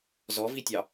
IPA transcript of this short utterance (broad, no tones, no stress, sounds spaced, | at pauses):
z ɔ v i tʲ ɑ